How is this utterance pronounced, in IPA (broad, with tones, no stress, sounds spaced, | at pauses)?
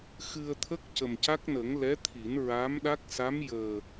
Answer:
x ɨ˧ ə̯ t̪ʰ ə˦˥ k̚ c ə˨˩ m c a˦˥ k̚ n ə˨˩˦ ŋ l ɛ˧˥ t̪ʰ i˨˩˦ n ɹ aː˧˥ m ɗ a˦˥ k̚ s a˧˥ m j əː˨˩